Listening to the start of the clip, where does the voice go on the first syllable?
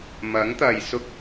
rising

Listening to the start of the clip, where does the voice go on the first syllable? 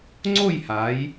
falling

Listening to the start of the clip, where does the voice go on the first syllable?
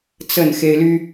falling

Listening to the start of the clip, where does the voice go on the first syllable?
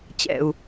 low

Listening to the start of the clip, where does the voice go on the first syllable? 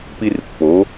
high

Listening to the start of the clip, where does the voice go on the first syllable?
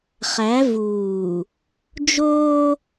rising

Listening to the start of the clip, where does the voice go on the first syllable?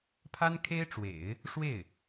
high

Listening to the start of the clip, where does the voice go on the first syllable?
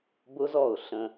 high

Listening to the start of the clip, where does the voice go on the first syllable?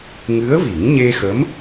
rising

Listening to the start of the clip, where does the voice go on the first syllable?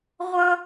high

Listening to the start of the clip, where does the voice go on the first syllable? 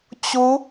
rising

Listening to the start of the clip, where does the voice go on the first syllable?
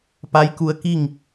rising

